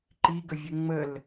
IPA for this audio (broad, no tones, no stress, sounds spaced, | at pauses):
ǃ i ɡ ə vʲ ɛ ŋ͡m ə l